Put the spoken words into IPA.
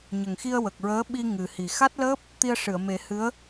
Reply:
ɲ ə˨˩ ŋ x i˧ ə̯ w ə˨˩ k̚ ɹ əː˧˥ ɓ i˧ ŋ ɨ˨˩ h i˨˩ x a˦˥ t̚ l əː˦˥ p̚ | t̪ i˧ ə̯ ʂ ɨ˨˩˨ ə̯ m e˨˩˦ h ɨ˧˥ ə̯

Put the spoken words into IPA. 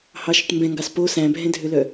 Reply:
h ɑ ʃ œ ʈ m b ɛ̃ ŋ ɡ ɑ s p o s æ̃ bʱ ɛ̃ dʱ ø l œ

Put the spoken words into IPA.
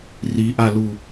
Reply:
r i ʔ a l u

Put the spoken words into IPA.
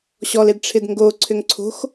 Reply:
ɕ ɔ l e d ʈ͡ʂʰ ɪ d ŋ ɡ o ǀʰ ʏ ŋ ǀʰ o̤ x

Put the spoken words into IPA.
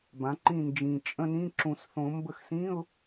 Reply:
b ã˩˥ ǃ ĩ˦˨ n d͡ʒ ĩ˨˩ t͡ʃʼ ə̃˧˥˧ n ĩ˧˥˧ ǁ ũ˨˩˦ s θ õ˨˩˦ m b ə˦˨ x s ĩ˧˥˧ ʊ̯

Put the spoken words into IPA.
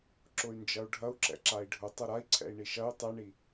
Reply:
ǁ ʊ y̯ n d͡ʒ ɐ u̯ ɖʱ ɐ u̯ ǁ ɛ̰ ǁ a i̯ ɖʱ ʊ tˤ ɐ ɾ a i̯ ǀʰ ɛ̰ i̯ ɳ i ʃ ɐ y̯ tˤ ɛ ɳ i

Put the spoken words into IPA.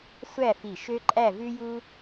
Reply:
sʷ æ˥˧ f i˧˩ ʃ ø˥ ǃʼ æ˥˧ v ʉ˥ j u˥

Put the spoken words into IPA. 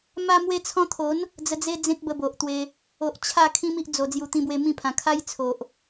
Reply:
m a˧ m w e˧ t͡sʰ ɔ̃˧ t̪ʰ o˨˦ n | d͡z ə˧ d͡z e˦ d͡z ẽ˦ k̚ b ə˧ b o˨ ʔ t̪ w e˧ | o˨ ʔ t͡ɕʰ a˥˧ kʰ ĩ˦ m i˦ ʔ d͡z o˨˩ d͡z j u˨˩ t̪ ĩ˧ b w e˧ m ĩ˥˧ pʰ ã˨˩ kʰ a˦ j t͡sʰ o˨ ʔ

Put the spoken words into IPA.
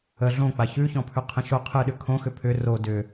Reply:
ə ɮ õ k͡p a ç ʉ ç ɔ̃ pʰ ʉ qʰ ə̃ ʃ o qʰ ɨ ɗ ʏ kʰ õ x ʏ pʰ ʏ r o d ʏ

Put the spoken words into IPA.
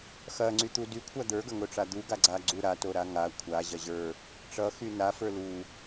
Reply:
x ɐ ŋ͡ǀ y t̪ u d y kʷʰ a d̪ ə˞ ɡ ɐ ŋ o ʈ͡ʂ a d̪ u ɡ a ɡ͡ǀ a ɡ͡ǀ u ɾ a t o ɾ a ŋ a kʷʰ a ʑ ɐ ʑ ə˞ | ʈ͡ʂ ʌ x y n a f ə˞ l u

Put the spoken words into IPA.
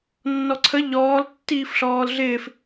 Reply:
nː ɔ ǀʰ ə ʎ ɔː l tː iː f ɬ ɔː l ɮ ɪː f

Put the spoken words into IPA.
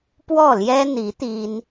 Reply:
p w ɔ˥˩ l j ɛ˥ n̪ i˧˥ t̪ i˥ n

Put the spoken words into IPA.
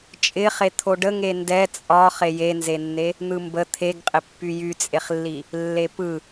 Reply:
t͡ʃʼ ɪ χ e t̪ʰ o ɖ ə ŋ e n d ɛ t͡sʼ ɒ χ e j e n z e nː e | n̪ ɯ m b ə t̪ʰ e ɡ qʼ ɪ pː y j y t͡sʼ e χ lː i | lː e p ɯ

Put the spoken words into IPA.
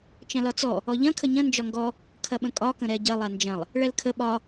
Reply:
t͡ʃ ɐ̃ l ɒ t͡s ɔ | ɔ ʎ ɐ̃ kʰ ə ɲ ɐ̃ n d͡ʒ ɒ ŋ ɡ ɔ | kʰ ɐ ɓ ə̃ kʼ ɒ k ə̃ ɾ ɛ ɟ ɐ lˠ a n d͡ʒ ɐ̃ lˠ | ɭ ɛ l kʰ ə ɓ ɒ

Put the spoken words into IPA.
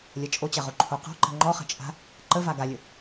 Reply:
lʲ ɐ t͡ʃʼ o t͡ɕ ɐ ʁ o ǃʰ o q ɔ̤ ǃ ə̤ ŋ͡ǃ ɔ χ ə̤ t͡ʃʼ a̤ | ǃ ə v a ɡ a lʲ ə

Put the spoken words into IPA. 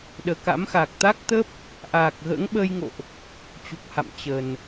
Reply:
ɗ əː˨˩ k a̰˧˥ m x aː˨˩ k̚ t̪ a˦˥ k̚ t̪ ə˦˥ p̚ | ʔ aː˨˩ k̚ ɣ ə̰ː˧˥ ŋ ɓ əː˧ j ŋ o̰˧˨ ʔ | t͡ɕ u˨˩ k̚ h a̰˧˨ m t͡ɕ ə˨˩ n

